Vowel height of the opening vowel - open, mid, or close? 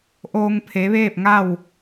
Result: mid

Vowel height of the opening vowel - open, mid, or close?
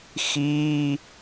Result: close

